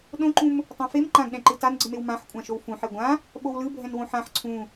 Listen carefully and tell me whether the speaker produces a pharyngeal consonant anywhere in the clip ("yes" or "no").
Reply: yes